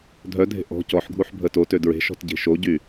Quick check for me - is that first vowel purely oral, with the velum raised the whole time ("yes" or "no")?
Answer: yes